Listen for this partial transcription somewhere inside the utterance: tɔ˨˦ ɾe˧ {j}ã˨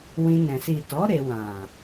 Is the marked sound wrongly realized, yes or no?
yes